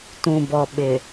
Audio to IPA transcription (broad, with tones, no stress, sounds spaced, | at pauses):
t ũ˨ b ɔ˨ ɓ ɪ˨